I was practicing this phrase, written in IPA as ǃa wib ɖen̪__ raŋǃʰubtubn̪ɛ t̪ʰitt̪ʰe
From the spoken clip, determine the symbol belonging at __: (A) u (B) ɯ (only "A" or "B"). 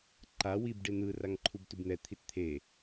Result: B